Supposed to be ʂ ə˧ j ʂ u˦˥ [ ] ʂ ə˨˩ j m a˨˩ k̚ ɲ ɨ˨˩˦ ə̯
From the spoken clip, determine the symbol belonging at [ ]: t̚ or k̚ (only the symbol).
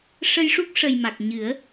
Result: k̚